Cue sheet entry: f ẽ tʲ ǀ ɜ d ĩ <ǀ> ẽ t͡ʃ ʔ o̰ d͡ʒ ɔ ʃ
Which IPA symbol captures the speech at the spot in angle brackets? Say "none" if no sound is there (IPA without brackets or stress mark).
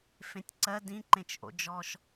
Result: ǃ